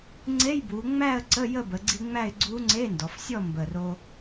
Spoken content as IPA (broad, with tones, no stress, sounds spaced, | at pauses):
ŋ͡ǀ e˧˥˧ j b u˩˧ ŋ͡m æ˥˨ ə̯ ǀ ə˧˥˧ j ə˥˨ b ə˩˧ ɡ͡ǀ i˧ ŋ͡m æ˥˨ ɪ̯ ɡ͡ǀ u˧˥ ŋ͡ǀ e˧˥˧ n d ɔ˩˧ f sʲ ɔ˥˨ m b ə˨˩ r o˧